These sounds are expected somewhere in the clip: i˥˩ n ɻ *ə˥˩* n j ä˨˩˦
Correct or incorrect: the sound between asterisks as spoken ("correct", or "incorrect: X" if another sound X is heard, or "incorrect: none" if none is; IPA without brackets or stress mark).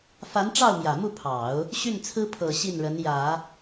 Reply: incorrect: ə˧˥